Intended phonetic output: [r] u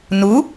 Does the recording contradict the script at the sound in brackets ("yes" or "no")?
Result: yes